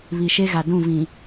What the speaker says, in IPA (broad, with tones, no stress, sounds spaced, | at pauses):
β i˨ ʃ e˦ ɣ a˨ d ũ˦˨ v ĩ˨